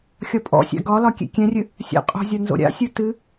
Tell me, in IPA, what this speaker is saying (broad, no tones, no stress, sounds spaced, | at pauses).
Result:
xʲ ɒ pʼ ɔ̰ sʲ a̰ ɡ ɒ l ɒ kʲ ḛ kʲ ɛ̃ rʲ ɨ | sʲ a̰ qʼ o̤ zʲ ɒ n z o̰ ɾʲ a̰ sʲ u t ɨ